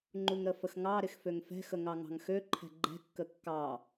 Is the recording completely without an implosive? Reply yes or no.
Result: yes